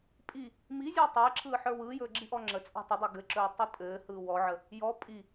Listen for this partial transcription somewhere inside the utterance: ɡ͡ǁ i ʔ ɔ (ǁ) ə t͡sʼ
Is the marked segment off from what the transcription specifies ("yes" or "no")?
yes